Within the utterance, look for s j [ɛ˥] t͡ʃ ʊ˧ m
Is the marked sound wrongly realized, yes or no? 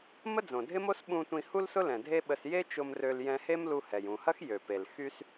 yes